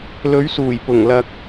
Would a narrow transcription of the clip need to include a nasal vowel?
no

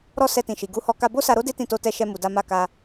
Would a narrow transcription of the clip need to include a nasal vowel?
yes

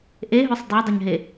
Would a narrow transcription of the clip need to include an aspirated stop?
no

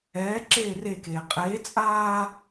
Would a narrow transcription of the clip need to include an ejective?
yes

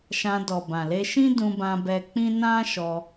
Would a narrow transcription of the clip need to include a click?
no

